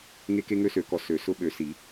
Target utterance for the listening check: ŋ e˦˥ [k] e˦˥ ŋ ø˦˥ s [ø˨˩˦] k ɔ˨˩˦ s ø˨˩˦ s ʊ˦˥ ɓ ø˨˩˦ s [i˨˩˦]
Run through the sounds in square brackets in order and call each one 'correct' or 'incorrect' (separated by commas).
correct, correct, correct